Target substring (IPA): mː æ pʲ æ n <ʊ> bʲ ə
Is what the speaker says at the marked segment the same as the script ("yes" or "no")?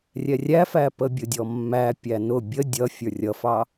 yes